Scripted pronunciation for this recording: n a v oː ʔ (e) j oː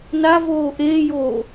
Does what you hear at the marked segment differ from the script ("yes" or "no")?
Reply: yes